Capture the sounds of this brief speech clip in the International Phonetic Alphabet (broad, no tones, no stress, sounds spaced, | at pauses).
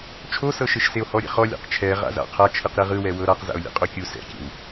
t͡ʃʰ o s ɤ ʃ e ʃ s e o̯ h ɔ ɾʲ ɛ̰ χ ɔ lʲ ɛ̰ q t͡ʃʰ ɛ ʁ a̰ z a̰ qʰ a t͡ʃʰ ɯ q ɾ e ʁ ɯ w ɛ w ɤ ɾ a q z a̰ o̯ lʲ ɛ̰ qʼ o kʲ u s ɛ̰ kʲ ɛ̰ w